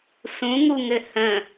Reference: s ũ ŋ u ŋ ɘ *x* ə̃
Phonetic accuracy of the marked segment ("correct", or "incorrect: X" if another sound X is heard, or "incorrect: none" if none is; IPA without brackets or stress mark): incorrect: h